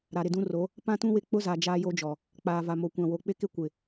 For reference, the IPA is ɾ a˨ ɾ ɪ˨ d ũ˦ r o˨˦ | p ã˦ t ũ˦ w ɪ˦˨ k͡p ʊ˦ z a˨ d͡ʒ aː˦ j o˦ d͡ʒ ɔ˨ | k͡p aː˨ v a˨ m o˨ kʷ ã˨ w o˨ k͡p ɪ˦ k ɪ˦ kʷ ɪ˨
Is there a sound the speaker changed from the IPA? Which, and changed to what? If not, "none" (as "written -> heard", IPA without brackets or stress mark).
none